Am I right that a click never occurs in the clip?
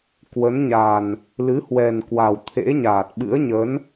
yes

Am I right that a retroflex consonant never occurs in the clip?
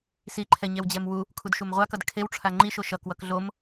no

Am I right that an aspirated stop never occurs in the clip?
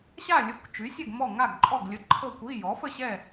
no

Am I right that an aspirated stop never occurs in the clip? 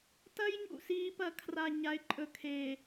no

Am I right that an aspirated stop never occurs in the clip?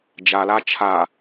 no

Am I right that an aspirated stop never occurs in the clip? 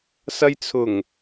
no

